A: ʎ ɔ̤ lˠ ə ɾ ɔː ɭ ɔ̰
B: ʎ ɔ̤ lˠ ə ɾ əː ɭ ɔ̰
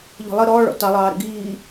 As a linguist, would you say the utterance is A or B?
A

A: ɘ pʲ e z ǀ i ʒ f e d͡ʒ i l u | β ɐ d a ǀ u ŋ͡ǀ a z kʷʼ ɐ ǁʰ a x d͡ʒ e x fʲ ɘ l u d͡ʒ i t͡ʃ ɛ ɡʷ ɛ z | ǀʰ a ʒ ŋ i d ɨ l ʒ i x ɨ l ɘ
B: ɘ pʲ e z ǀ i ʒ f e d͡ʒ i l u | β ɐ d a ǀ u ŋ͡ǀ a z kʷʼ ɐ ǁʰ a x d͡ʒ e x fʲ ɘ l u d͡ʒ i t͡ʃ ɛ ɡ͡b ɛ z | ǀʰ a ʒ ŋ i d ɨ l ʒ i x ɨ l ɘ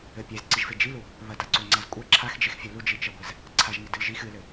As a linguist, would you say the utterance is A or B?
A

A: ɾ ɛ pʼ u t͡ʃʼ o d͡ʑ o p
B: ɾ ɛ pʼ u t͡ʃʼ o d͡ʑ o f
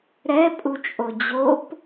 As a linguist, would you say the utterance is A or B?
A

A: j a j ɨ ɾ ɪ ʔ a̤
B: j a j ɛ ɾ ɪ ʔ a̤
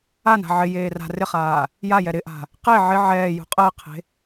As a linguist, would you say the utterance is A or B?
B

